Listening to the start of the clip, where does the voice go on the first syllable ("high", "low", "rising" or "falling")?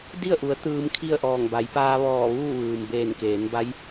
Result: falling